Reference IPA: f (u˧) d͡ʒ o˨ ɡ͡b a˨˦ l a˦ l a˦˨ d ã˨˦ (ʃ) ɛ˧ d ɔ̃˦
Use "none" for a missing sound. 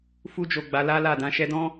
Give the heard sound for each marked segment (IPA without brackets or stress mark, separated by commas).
u˧, ʃ